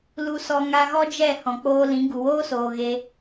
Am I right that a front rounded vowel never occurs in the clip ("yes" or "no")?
yes